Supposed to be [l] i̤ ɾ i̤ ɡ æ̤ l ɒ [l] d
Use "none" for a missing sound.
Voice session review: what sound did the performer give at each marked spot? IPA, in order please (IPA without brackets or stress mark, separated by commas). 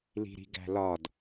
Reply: l, none